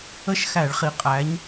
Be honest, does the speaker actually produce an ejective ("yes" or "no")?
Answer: yes